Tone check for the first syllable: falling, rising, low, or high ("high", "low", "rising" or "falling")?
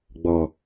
low